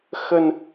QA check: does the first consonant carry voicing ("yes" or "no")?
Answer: no